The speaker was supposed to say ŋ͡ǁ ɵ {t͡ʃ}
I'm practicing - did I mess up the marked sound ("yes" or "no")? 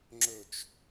no